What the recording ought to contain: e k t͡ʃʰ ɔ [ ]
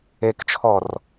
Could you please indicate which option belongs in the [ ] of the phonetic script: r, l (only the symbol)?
r